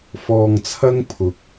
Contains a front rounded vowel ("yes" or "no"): no